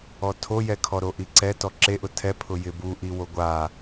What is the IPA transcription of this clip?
ɔ tʰ o j ɛ kʰ ɔ ɾ o ʔ i ǀ ɛ t ɔ ǁ e ʔ ʊ tʰ ɛ pʰ ʊ j ɪ b u ʔ i w o ɡʷ a

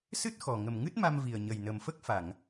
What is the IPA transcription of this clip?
s ɨ˦˥ t̚ x ɔ˨˩ ŋ ə˨˩ m ŋ ɨ˦˥ t̚ m a˧ m v i˨˩ ə̯ ɲ ə˨˩ j n ə˨˩ m f ə˦˥ k̚ f a˨˩˨ ŋ

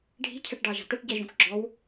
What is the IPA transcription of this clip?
ɖʱ i̤ cʰ ɛ ʈ ɖ ɑ ʒ ɑ̤ t̪ æ ʈ ɟ ɛ ʒ ũ k ɡ͡ǁ ɔ w

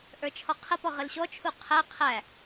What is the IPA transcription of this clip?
ʔ ə˞ t͡ʃʰ ɔ qʰ ə p ɔ ʁ ə l ɕ ɔ t͡ʃʰ u qʰ æ qʰ æ

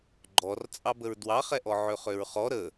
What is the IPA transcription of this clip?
ɡ͡ǃ ɔ r t͡sʼ ɑ b ə ɹ d w ɑ χ ɛ ʔ ɔ ʕ ø χ ø ɹ χ ɔ ɾ ə

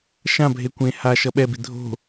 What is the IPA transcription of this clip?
ʃ ã bʱ e kʷ ẽ h a ʃ ʌ ɓ ɛ b i dʱ o̤

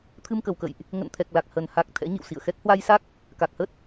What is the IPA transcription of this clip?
t̪ʰ ɨ˧ m k ə˨˩ w k ə̰˧˨ j ʔ | ŋ ə̰˧˨ n t̪ʰ ɛ˨˩ k̚ l a˨˩ k̚ h ə˨˩ n h a˨˩ k̚ t̪ʰ ɛ̰˧˥ ɲ ḭ˧˨ w s ḭ˧˨ ə̯ x ɛ˦˥ k̚ h w a˧ j s a˦˥ k̚ | k a˨˩ k̚ h ə˦˥ t̚

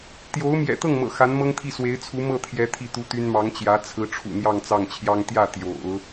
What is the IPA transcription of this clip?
t̪ j o˧˥ ʊ̯ m j ɛ̰˨˩ t̪ ɤ˥˩ ŋ m ɤ̰˨˩ x a˧˥ n m ɤ˥ ŋ t̪ʰ i˥˩ s w e˧˥ ɪ̯ t͡sʰ u˧˥ m ɤ˥˩ t̪ʰ j ɛ˧˥ t̪ʰ i˥˩ t̪ u˥ t̪ y˥ n m ɑ˧˥ ŋ t͡ɕ j ä˧˥ t͡sʰ ɹ̩˧˥ ʈ͡ʂʰ ṵ˨˩ n̪ j ɑ˥˧ ŋ t͡s ɑ˥˩ ŋ t͡ɕʰ j ɑ˥ ŋ t̪ j ä˥˩ t̪ j o̰˨˩˦ ʊ̯

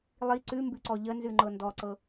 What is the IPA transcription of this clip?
lˠ i ǀ ʉ m b ʉ ǀ ɔ ʎ ə n z ʉ ŋ͡ǃ ɤ n d ɔ ǀ ɤ

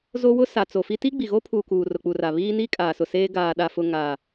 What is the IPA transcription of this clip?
z o˦ w ʊ˦ s a˨ t͡s o˨ f i˦ t i˦ ɡ͡b i˨ ɣ o˦ pʰ uː˨ k uː˨ r ʊ˨ k͡p u˨ r a˨ β iː˦ n iː˦ kʼ aː˨ s ʊ˨ s eː˦ ɡ aː˨ ɗ a˨ f ʊ˨ ŋ a˨

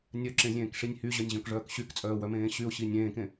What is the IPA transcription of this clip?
nʲ œ ǁ ẽ zʲ ẽː k ʂ i nʲ h y ʑ œ nʲ ʑ œ̃ k ʐ œː k ɕ y k t͡sʼ œː w œ m ẽː ɕ y ʊ̯ ɕ i nʲ ẽː k ẽ

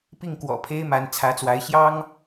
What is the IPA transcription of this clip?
p i˥˩ ŋ k w ɔ̰˨˩ pʰ e˥ ɪ̯ m a˧˥ n t͡sʰ ä˧˥ t͡s w a˧˥ ɪ̯ ɕ j ɑ˥ ŋ

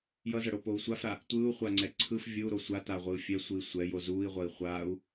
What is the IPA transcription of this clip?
j ʌ z ʌ ɽ o p o u̯ sʷ a f ɾ a | tʷ ɯː u̯ χʷ a ŋ͡ǀ ɛ ǀʰ ɯ f vʲ ɯ u̯ ɾ o sʷ a t a ʁʷ ɯː fʲ ɛ sʷ ɯ i̯ sʷ ɛ j o z uː i̯ ʁʷ ʌ i̯ χʷ aː u̯

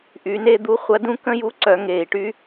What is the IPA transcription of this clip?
ʔ y˩˧ n e˥ d̪ u˧˥ χʷ ɐ˧˥ d ũ˥ k ə̃˥ j u˧˥ ǀ œ˩˧ ŋ eː˩ i̯ ʈ y˥

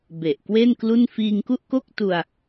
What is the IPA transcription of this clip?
b e˨˩ ʔ k w e˥˩ n k l u˥˩ n f iː˧ ŋ k u˥˩ ʔ k o˥˩ k̚ t u˧ a̯

